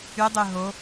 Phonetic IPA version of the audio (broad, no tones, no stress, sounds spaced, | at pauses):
y dˤ ø ɦ o